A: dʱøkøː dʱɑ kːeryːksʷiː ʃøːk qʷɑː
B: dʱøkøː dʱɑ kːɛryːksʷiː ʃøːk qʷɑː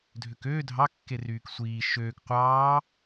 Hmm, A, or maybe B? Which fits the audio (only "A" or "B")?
A